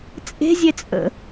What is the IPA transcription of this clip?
t͡sʼe̤zʲe t͡sʼə̰

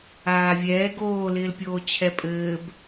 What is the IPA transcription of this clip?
aːvʲɛː ɡoːlɪːlpʲoː t͡ɕʰɛpʼɘːb

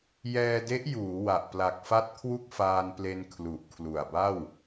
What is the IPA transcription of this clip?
jɛː˧de˦˥ʔjuː˩˦ wa˨˩ʔpla˨˩k̚fa˥˩t̚ kʰwu˥˩k̚faː˧nple˧n kʰlu˨˩ʔkʰlu˨˩a̯ba˥˩w

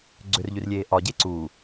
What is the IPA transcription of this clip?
ɡ͡ǀʏrʎyrlʲeː ʔɒɟe ǀuː

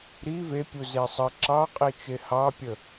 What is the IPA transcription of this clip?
ɾi vepʲuze sˤə ǁɑqʼit͡ʃe hɑpʲə

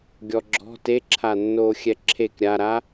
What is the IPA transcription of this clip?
ɡʲɔɡ͡ǁɔ̤ teǁʰanːoː xʲɛǁʰek ɾʲaɾa

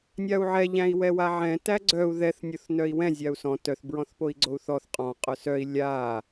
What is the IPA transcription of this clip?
nʲau̯ʕɛ ʎæ̃i̯wɛwaʕɛ̃ tæɡ͡ǀœu̯ ðɛθ nʲoθnœi̯wɛ̃ zʲau̯sɔ̃ tœθ bɹɔ̃θpoi̯ɡ͡ǀou̯θɔθ qʼɔ̃ qʼœsœi̯ lʲa

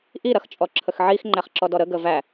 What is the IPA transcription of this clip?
ʔiɾɐx t͡ʃʼɔǁʰəxʕix ŋ͡ǃæχǁɔdɔɾə ɡəvæ

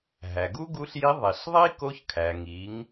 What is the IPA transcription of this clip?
ɦæ˩ɡu˥ɡu˧˥ɬji˧˥ ðˤi˩ɬ ðˤi˥ko˧˥çkʰæ˩ ŋi˩˥ŋ

